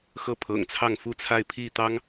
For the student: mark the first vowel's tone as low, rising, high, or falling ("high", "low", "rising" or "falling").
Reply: falling